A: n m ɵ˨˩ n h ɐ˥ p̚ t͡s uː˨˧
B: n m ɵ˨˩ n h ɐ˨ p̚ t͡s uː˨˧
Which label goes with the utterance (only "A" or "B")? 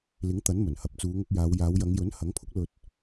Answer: B